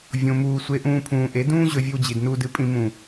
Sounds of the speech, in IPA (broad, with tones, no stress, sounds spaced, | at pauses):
vʲ õ˧ m uː˧ sʷ e˧ ʔ ũː˧ pʰ ũː˨ ʔ e˨˦ d ũː˦ ʑ ɵ˧ vʲ ɵ˧ w d͡ʑ i˨ d n uː˧ d ɨ˧ pʼ ĩ˧ m ũ˨